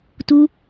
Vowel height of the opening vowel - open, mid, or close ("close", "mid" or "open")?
close